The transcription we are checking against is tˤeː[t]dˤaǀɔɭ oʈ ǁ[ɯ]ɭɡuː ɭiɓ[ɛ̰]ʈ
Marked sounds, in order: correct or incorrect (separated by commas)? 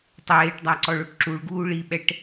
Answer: incorrect, incorrect, incorrect